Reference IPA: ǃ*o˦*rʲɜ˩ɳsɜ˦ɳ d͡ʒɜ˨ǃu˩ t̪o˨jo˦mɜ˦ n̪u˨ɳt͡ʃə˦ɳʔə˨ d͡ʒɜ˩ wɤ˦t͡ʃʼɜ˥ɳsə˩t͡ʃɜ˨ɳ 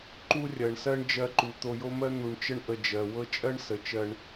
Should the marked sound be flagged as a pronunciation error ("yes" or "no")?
yes